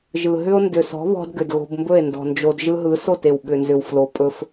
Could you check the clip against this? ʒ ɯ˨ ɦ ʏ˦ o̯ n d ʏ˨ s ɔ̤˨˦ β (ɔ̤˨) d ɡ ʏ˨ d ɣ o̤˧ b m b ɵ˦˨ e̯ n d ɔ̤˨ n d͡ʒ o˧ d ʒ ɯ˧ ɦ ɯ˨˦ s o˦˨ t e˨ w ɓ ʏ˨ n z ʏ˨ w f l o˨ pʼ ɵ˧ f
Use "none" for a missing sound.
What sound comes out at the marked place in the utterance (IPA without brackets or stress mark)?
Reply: ɔ̤˧